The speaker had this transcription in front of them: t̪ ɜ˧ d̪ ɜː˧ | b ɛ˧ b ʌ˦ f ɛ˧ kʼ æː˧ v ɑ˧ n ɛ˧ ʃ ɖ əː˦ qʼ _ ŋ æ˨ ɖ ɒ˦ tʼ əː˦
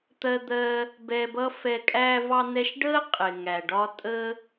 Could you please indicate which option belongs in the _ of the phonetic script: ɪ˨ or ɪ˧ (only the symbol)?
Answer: ɪ˨